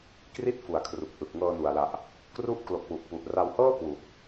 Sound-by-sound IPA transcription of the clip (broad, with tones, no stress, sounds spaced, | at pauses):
k r i˥˩ t̚ f u˨˩ a̯ kʰ r u˨˩ k̚ ʔ ɯ˨˩ k̚ ŋ ɤː˧ n u˨˩ a̯ l a˨˩ ʔ | k r u˦˥ ʔ k l o˨˩ k̚ w u˨˩ ʔ p u˨˩ ʔ r a˧ w h ɤː˥˩ k w u˨˩ ʔ